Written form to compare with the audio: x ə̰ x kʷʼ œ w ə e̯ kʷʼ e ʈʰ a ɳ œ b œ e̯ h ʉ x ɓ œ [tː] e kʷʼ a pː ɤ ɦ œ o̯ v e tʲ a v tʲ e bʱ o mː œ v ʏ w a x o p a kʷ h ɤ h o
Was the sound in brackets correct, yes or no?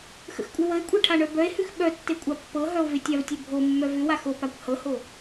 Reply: yes